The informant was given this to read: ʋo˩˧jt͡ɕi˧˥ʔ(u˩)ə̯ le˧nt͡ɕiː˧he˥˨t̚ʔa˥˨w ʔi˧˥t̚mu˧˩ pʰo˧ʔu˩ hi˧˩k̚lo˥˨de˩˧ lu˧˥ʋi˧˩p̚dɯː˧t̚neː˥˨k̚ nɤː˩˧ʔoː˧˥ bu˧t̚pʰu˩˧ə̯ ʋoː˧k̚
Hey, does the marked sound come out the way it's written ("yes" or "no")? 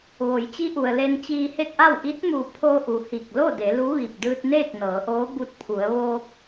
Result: yes